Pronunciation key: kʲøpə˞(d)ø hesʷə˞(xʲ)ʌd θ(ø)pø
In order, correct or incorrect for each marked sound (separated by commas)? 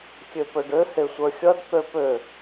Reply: incorrect, correct, correct